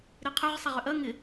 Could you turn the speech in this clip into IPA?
ɾ e qʰ œ ʁ sˤ a ʁ ʏ ʔ ɐ ŋ ɪ

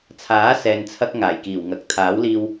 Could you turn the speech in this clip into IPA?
t͡sʰ aː˨˥ s ɛː˨ n t͡sʰ ɐ˧ k̚ ŋ aː˨˩ j k iː˨˩ w ŋ ɐ˨ k̚ t̪ʰ aː˨˥ w l iː˧ w

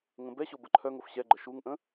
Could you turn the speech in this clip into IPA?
ŋ ə̃ b ɛ ɕ o b ə ǃʰ œ ŋ o f ɕ ɛ ɡ͡ǃ ə ʃ u ŋ ʔ ə̃

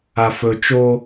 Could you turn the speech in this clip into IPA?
a f ɵ t͡ʃ o

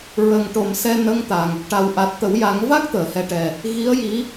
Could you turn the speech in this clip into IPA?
ɹ ə˨˩ ŋ ʈ o˨˩˨ m s ɛ˧ n ə˧˥ ŋ t̪ a˨˩ ŋ | ʈ a˨˩ w ʔ a˨˩ t̚ t̪ ə˨˩˦ w j a˨˩˦ ŋ v a˦˥ k̚ t̪ əː˨˩˨ h ɛ˨˩ ʈ ɛ˨˩ | ɣ i˧˥ ə̯ j i˧˥

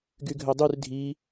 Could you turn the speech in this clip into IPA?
ɡ y ɡʱ ø dˤ y r dʱ i

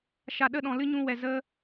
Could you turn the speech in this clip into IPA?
ʃ a˨ ɗ ə˧ ɗ ɔ̃˨ l ɨ˦ ɲ ũ˧ w ɛ˨ z ə˧

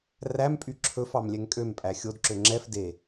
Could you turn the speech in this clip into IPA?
r æ m pʼ y ǁʰ ɵ f ɑ m lʲ ɛ ŋ kʼ ø m pʼ æ xʲ o d ǁ ø ŋ͡ǁ ɛ f d e

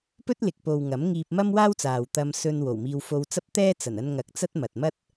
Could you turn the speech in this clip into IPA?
p ɵ˥ t̚ l ɪ˨ k̚ p o˨ w ŋ ɐ˨˥ m ŋ iː˧ p̚ m ɐ˥ m w aː˥ w t͡s aː˨ w t̪ ɐ˧ m s ɵ˧ n w o˨˩ w m iː˧ w f o˧ w t͡s ɐ˥ p̚ t̪ ɛː˥ t͡s ɐ˨˩ n ɐ˧ n ŋ ɐ˨˥ k̚ t͡s ɐ˥ t̚ m ɐ˨ t̚ m ɐ˥ t̚

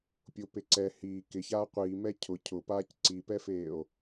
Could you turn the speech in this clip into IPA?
pʲ ʊ p e ǀ ɛ h i k ɪ ç aː qʷ iː m ɛ cʰ ʊ cʰ ʊ p aː c ǀ i p ɛ f eː o̯

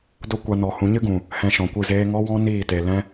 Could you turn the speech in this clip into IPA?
d o˦ kʷ a˧ n ɔ˨ h ũ˨˦ ɲ ɨ˦ ɡ ũ˨ | h ɛ̃˧ ʃ ɔ̃˨ kʷ ɨ˦˨ z eː˦ ŋ ɔ˦ w ɔ̃˦ n iː˦˨ t e˨ l ɛ̃˦

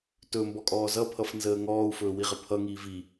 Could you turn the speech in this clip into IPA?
t ɵ m b ɔ kʼ ɔː z ʌ pʰ ʌ f n z əː ŋ ɔː u̯ f ɵː w i ʁ ə pʰ ʌ ŋ iː v i

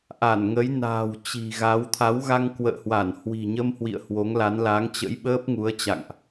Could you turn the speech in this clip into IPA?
ʔ a˧˩ n ŋ ə˨˦ j n a̤ː˨˩ w t͡ɕ i̤˨˩ ɣ a˨˦ w t̪ʰ a˨˦ w ɣ a˧ ŋ k w ə̰ː˧˨ h w a˧˩ n h w i̤˨˩ ɲ ə˧ m h w ḭ˧˨ ə̯ h w o˨˦ ŋ l a˨˦ n l a˨˦ ŋ t͡ɕ ə̰˧˥ j ɓ əː˦˥ p̚ ŋ u˨˦ ə̯ t͡ɕ a̰˧˨ ŋ ʔ

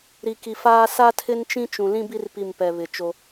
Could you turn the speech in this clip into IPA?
ɾ i˨ k i˨ f aː˦ s a˦ tʰ ɪ˦ n t͡ʃ ĩ˦ t͡ʃ ũ˨ l ĩ˦ b i˦ r p i˦˨ m p ɛ˨ β ɪ˨ t͡ʃ o˦

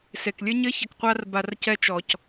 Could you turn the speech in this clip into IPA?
s e˨ k lʲ ɘ˦ ɲ ɘ˦ ç ɐ˧ k qʷ a˦ r b a˧ r c ɛ˦ t͡ʃ ɔ˧ c

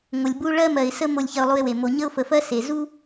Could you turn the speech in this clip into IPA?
ŋʷ ə˨ lʲ b u˦ ɭ ɜ˦ m ɜ˨ ɪ̯ s ə˦ m o˦˨ lʲ ç ɐ˦ ʊ̯ lˠ u˦ ɪ̯ w e˨ m o˨ ɲ ə˦ ʊ̯ f ə˨ f ɜ˦ s e˨ z u˦

